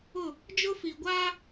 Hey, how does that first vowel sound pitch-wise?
falling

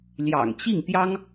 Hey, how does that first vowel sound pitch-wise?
low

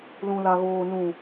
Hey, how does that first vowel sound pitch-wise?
low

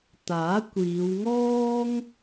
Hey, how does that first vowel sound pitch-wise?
rising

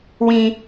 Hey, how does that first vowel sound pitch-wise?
high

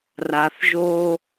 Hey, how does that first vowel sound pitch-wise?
low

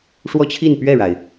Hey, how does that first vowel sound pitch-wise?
falling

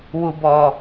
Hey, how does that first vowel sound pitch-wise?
high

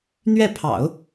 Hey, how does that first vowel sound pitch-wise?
falling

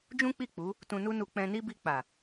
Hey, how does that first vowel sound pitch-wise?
high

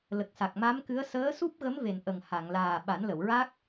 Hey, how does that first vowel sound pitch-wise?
low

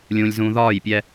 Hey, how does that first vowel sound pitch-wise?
low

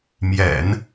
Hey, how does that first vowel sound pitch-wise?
low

